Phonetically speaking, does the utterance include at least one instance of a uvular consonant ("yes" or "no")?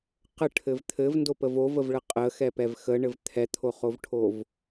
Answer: yes